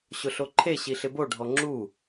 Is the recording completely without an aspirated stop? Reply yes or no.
no